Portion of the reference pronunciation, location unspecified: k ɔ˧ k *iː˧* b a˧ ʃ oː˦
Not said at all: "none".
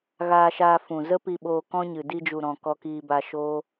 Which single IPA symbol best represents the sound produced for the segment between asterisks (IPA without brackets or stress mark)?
iː˧